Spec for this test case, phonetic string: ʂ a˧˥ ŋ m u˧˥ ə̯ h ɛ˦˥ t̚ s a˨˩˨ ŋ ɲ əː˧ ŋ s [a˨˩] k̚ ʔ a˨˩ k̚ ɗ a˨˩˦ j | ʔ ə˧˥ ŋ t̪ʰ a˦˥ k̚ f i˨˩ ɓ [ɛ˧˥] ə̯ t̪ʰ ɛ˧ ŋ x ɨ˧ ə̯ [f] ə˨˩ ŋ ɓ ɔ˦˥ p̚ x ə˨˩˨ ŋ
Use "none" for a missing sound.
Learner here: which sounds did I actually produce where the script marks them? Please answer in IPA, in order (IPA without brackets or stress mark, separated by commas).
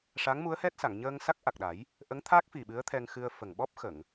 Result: a˦˥, ɨ˧˥, f